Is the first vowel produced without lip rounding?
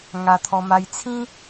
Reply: yes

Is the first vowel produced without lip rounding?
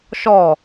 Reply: no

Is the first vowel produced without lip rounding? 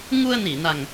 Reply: no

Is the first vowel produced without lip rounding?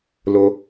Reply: no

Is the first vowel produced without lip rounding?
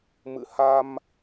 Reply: yes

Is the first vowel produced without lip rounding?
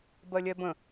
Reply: yes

